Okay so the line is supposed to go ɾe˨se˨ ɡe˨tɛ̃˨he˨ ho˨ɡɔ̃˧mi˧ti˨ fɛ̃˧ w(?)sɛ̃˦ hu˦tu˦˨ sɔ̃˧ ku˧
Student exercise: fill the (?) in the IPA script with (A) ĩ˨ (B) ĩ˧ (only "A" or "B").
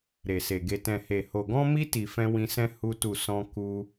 B